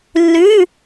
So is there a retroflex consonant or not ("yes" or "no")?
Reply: no